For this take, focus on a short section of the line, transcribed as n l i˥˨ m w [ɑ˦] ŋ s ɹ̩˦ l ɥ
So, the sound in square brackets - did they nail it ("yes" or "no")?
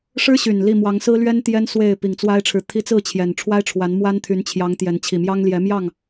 no